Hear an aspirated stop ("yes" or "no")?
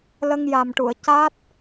no